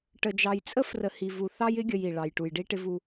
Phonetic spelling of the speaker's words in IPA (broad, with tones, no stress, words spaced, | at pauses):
ʈə˨d͡ʒɑ˨jt͡sʼə˦ frə˨hi˨vu˨ θɑ˦jɪ˦ɡʲə˨j i˨ ɭɑ˨jʈu˨jɖi˦ ʈɪ˦vu˦